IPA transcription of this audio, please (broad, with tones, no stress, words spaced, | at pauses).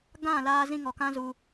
ɡã˦˨laː˧ zĩ˧ŋɔ˨ kã˦zu˧